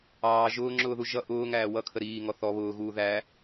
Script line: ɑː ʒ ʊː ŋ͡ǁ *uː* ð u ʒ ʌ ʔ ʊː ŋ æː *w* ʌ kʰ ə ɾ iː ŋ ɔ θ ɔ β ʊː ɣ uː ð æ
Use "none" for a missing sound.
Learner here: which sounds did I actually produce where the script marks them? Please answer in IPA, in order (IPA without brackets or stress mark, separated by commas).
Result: ʊː, w